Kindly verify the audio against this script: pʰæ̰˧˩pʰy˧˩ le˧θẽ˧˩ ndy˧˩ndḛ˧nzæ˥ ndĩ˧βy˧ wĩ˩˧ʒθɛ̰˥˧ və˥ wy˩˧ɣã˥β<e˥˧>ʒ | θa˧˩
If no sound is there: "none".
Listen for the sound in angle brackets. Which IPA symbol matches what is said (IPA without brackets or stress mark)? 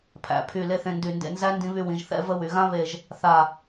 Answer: e˧˩